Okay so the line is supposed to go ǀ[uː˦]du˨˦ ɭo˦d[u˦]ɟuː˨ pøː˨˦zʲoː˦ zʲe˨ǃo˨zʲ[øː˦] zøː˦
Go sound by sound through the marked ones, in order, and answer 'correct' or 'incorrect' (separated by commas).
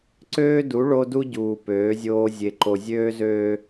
incorrect, correct, correct